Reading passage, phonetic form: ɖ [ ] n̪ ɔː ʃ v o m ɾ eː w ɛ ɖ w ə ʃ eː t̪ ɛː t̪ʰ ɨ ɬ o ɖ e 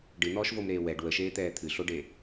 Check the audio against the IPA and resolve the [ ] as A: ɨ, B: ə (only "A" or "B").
A